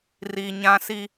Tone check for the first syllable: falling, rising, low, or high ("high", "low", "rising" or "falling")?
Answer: low